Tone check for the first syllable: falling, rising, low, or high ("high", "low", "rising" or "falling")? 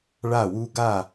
falling